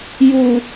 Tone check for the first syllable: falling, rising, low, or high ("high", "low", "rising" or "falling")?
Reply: low